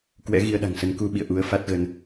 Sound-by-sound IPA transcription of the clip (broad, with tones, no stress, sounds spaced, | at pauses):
k w ɛ̰˧˥ ɣ i˧ ə̯ ɗ a̤˨˩ ŋ s ə˨˦ n k u˧ ɓ ḭ˧˨ ə̯ ʔ u˨˦ ə̯ f a˦˥ t̚ ɣ ə˧ n